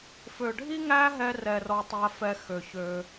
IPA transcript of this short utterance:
fø˨ɖʱi˦ ŋæ˦ɦɛ˧rɛ˨ rɔ˦tˤæ˦fɛ˦ xø˨ çø˧

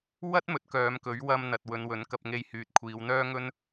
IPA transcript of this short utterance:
wɐ˥t̚mɵ˨˥t̚ kœː˨˧mkɵ˨˥ɥ wɐ˧mn̪ɐ˨t̚ wɵ˨˧nwɵ˨˥n kɐ˧p̚ŋe˧jhyː˨t̚ kʷʰiː˨˧wn̪œː˥ŋɵ˥n

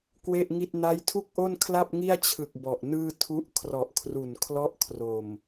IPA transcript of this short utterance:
kwe˥˩ʔŋi˥˩t̚ na˦˥jtʰu˥˩k̚ʔo˥˩nkʰla˥˩p̚ ŋi˥˩a̯t͡ɕʰɯ˨˩k̚ bɔ˨˩ʔnɯː˥˩ tʰu˦˥ʔ kʰrɔ˨˩ʔkʰru˨˩n kʰlɔ˥˩ʔkʰro˨˩m

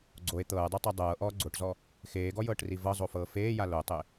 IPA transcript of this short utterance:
ɡ͡ǀoe̯ t̪ɤːdˤutˤɤ dˤɤːʔɔː ɡ͡ǀoʈzɔ | xeːɡɔjɤːʈri vɤzˤofɤː feːja lotˤe

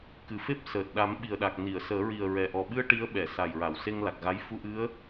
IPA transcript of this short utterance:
kɨ˨˩˨fe˦˥p̚ səː˨˩t̚ ɗa˨˩˦mɓi˨˩ə̯ɗa˨˩k̚ni˨˩˨ə̯ səː˨˩˦ɹi˨˩ə̯ɹɛ˨˩ʔɔ˨˩ ɓɨ˧ə̯ ʈi˧˥ə̯ɓɛ˨˩˨ sa˨˩jɹa˨˩˨wse˧ŋ la˨˩k̚ɣa˧˥j fu˧ʔɨ˧˥ə̯

